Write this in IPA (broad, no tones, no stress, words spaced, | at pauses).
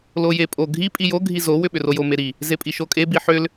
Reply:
lojepʼo ɡʱi pʼijo ɡʱizo wʏɓʏrojo meɾi | zepʼiʃokʼe biħʏl